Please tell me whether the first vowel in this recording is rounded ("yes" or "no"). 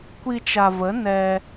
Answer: no